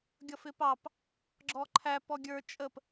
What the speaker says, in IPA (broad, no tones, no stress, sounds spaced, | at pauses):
ɡʲ ʌ f ɪ p ɑ p | ɡ͡ǁ ɔ ǃʰ æ p ɔ ɡʲ ə˞ t͡ʃʼ ə p